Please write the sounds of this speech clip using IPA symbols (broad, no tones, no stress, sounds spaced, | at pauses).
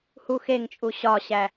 h u x e ŋ t͡ʃʼ u ɕ ɒ ɕ æ